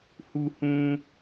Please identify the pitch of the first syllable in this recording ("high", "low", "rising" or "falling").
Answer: high